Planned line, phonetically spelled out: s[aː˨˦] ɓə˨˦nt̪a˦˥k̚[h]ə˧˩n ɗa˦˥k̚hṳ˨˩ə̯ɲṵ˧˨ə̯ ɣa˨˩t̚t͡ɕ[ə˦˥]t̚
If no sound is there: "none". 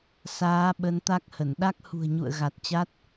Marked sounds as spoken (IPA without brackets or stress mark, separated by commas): aː˨˦, h, a˦˥